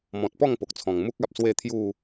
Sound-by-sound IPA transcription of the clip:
m ɔ̃˨ t̚ p ɔ˥˧ ŋ p o˨ k̚ t͡sʰ ɔ̃˨˩ ŋ m u˦ k̚ a˨ p̚ s w e˥˧ t̪ʰ j u˥˧

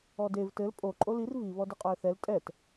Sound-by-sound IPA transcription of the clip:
ɔ d e v t ɘ l pʼ o ǃʼ o l i r v i β ɔ d ɨ qʼ ɔ ə̯ θ ɛ l tʼ ɛ t

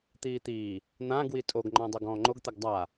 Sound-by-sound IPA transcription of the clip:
t̪ iː t̪ iː | n̪ ã ɡ w i tʼ o ɡ ŋ͡ǃ ɔ̃ dˤ o ɡ ɔ̃ː ŋ͡ǃ o ɡ t̪ ɛ ɡ dˤ a

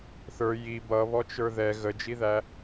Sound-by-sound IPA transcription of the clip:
θ ə˞ j i b ʌ β ɔ t͡ʃ ə˞ ð ɛ ɣ ə d͡ʒ i ð æ

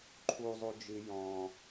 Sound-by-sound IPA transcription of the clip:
ǃʰ u zˤ u d͡ʒ ɨ j ɔ̃

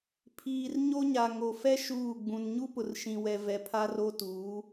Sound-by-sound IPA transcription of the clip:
pʰ iː˨ r ɲ o˦ ɲ a˨ ŋ o˨ f ɛ˦ ʃ uː˦˨ ɡ͡b ũ˨ n ɲ u˦ p ʊ˨ r ʃ ĩ˨ w ɛ˨ v ɛ˨ pʰ a˦ r o˦ t uː˨˦

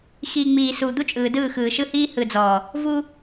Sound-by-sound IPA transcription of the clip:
x i˨ ŋ͡m iː˨ s u˨ d̪ u˦ t͡ʃʼ ɯː˨ d ɯː˦˨ x ɯː˨ ʃ ɯ˦ h iː˦ h ɯ˨ d͡z ɔː˨ | v u˦

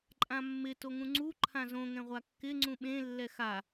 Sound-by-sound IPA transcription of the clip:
ǃʼ ã mː ɪ t o ŋ ũ ŋ͡ǀ u ǃʰ ã z õ ŋ ɛ̃ ʁʷ a kː ɪ ŋ͡ǀ ũ ɓ ẽ lː ɛ x a

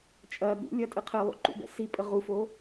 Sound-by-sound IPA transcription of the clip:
t͡ʃʼ ɐ ɠ ṵ lʲ ɐ tʼ ɘ qʰ ɘ lˠ ṵ ǃ ṵ b ɛ̰ s i pʼ ə ʁ u f o

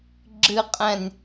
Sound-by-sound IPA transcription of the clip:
ɡ͡ǁ ɨ qʼ ɛ̃ nʲ

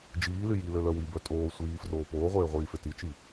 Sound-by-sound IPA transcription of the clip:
d͡ʒ iː l y j i l ø l œ w i b œ tʼ oː sʷ iː f r oː p oː ʁʷ eː ʁʷ iː f e t i t͡ʃ i

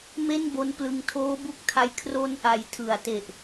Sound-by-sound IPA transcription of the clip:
m e˥˩ n b o˦˥ n p l ɯ˦˥ ŋ tʰ oː˦˥ b u˦˥ k̚ tʰ a˧ j kʰ r o˦˥ n ʔ a˩˦ j tʰ ɯ˨˩ a̯ t e˨˩ ʔ

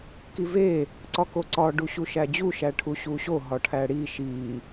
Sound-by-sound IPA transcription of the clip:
k i v e | ǀ ɒ k o ǀ ɒ ɖ u ɕ u ʃ æ d͡ʑ u ʃ æ ʈʰ u ɕ u ɕ o ɦ ɒ ʈʰ æ ɽ i ʃ i

